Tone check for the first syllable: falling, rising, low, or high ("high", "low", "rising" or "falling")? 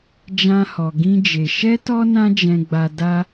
high